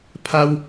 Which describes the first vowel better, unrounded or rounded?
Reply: unrounded